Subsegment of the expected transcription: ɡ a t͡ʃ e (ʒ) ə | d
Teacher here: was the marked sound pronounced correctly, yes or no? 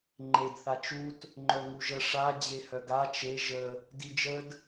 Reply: yes